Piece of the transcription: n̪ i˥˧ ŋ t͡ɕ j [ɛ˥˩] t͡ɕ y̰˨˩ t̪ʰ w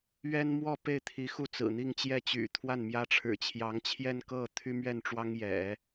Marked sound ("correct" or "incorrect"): correct